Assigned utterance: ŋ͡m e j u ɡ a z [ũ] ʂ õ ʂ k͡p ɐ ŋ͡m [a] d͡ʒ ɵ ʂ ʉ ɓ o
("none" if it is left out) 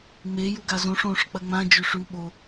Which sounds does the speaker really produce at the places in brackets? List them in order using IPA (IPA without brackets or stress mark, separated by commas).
õ, ã